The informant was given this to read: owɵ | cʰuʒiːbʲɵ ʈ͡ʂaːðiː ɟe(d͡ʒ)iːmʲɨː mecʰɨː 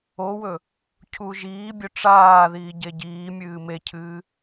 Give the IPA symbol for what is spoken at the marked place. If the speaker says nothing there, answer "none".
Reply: ɟ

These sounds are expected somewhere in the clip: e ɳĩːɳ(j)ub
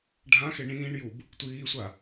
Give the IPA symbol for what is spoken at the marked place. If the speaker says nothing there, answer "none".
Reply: j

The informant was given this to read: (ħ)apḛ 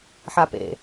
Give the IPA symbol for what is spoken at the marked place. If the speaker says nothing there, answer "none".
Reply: ħ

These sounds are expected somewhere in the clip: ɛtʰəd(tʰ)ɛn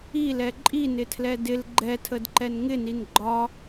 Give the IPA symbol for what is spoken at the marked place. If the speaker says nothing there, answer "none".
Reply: ǃ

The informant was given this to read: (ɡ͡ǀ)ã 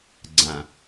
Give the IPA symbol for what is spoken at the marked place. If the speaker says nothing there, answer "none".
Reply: ɡ͡ǀ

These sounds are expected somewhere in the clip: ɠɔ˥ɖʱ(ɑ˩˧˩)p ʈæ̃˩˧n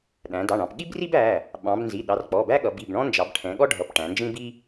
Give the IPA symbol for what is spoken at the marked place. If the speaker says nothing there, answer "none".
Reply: ʌ˩˧˩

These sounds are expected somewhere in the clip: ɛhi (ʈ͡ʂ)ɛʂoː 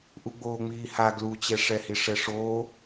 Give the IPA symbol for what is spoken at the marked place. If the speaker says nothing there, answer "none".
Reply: ʂ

